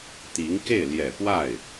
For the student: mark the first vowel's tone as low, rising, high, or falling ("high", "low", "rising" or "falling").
rising